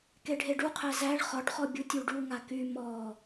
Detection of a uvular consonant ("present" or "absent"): present